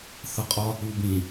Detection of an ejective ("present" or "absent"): present